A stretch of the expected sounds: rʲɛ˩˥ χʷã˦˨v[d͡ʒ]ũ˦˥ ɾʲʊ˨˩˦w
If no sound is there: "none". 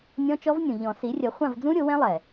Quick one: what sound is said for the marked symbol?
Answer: d͡z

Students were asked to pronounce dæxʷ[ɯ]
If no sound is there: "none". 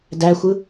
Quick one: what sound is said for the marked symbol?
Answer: ɯ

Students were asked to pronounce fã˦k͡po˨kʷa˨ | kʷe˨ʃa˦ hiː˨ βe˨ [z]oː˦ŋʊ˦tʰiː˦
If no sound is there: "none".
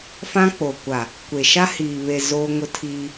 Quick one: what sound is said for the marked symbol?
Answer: z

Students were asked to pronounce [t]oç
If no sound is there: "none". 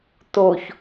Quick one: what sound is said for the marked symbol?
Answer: t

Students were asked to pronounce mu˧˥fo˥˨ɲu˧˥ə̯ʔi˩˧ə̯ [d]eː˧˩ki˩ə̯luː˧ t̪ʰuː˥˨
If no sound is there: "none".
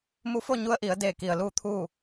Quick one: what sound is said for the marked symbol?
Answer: d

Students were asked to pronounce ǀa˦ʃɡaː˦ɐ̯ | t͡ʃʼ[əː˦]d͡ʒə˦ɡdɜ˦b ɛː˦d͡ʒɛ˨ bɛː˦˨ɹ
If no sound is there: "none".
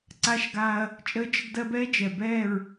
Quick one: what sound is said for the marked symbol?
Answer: əː˦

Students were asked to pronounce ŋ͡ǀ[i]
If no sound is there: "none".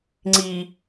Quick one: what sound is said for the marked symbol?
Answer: i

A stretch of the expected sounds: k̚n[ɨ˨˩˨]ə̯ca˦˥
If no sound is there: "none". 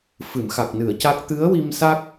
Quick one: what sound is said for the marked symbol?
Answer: ɨ˨˩˨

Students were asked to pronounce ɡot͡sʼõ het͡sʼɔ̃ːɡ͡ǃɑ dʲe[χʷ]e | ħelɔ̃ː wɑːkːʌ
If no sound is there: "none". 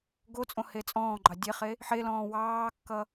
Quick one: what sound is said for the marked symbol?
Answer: χ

